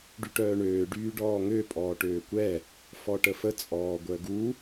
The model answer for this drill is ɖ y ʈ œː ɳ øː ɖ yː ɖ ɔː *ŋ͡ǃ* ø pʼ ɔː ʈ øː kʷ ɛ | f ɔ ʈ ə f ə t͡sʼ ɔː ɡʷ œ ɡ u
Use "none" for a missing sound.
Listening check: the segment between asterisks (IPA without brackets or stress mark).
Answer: ŋ